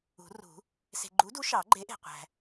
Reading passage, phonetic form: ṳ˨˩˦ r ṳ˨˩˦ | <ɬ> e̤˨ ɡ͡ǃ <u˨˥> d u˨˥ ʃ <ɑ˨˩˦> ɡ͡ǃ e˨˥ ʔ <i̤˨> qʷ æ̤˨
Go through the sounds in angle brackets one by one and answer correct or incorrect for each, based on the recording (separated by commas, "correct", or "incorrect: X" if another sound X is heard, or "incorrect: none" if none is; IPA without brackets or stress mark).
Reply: incorrect: s, correct, correct, incorrect: e̤˨